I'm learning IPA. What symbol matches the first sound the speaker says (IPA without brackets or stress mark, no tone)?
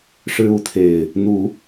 ʂ